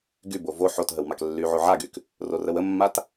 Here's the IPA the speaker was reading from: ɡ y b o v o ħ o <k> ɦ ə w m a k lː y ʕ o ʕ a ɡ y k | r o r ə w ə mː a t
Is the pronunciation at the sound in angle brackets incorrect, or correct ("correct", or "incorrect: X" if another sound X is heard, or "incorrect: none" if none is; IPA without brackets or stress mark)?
incorrect: t